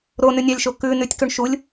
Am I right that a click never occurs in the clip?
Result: yes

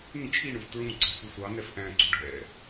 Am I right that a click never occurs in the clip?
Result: no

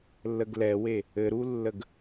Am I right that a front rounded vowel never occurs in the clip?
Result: yes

